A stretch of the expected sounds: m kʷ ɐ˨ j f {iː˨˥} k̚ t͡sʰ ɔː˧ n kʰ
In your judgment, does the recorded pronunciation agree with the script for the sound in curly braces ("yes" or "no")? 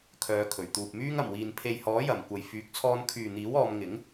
no